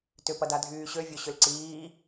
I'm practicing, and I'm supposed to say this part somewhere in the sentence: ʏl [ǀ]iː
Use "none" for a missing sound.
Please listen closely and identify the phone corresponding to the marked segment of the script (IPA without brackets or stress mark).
ǀ